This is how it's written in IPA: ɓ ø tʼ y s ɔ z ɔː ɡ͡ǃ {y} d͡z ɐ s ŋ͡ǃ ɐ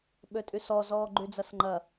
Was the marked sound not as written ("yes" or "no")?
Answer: no